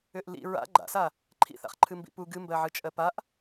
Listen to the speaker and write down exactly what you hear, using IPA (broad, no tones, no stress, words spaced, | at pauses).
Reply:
ʏʔlḭ ɹa̰ ɡ͡ǃa̰sa | ǃʰḭθa̰χ ǃʰɨmbḭpu ɡɨmbɜʕɨ t͡ʃʼɜpaʔ